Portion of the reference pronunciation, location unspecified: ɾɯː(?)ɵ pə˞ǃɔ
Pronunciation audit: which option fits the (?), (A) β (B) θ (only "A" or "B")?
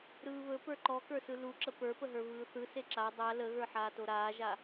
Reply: A